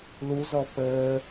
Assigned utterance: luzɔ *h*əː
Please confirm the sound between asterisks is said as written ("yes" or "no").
no